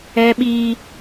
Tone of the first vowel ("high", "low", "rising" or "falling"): high